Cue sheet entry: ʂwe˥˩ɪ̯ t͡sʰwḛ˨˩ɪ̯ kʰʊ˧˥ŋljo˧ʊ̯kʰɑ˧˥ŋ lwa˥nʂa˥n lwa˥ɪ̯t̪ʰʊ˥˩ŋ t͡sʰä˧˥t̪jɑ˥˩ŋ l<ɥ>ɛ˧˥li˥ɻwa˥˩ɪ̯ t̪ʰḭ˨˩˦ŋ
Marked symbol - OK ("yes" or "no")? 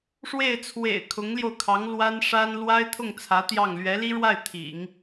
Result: yes